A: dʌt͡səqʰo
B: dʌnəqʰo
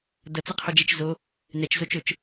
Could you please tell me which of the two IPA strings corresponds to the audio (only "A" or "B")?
A